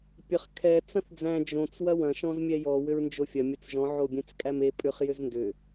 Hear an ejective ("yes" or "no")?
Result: yes